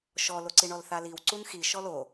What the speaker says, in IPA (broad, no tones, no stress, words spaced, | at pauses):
ʃɔloǀi ɳɔlθaliw ǀunxi ʃɔlo